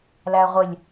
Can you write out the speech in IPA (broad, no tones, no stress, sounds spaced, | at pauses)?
l æ ʁʷ ɪ lʲ